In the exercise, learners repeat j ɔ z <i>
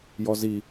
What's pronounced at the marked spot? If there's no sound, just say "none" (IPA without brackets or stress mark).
i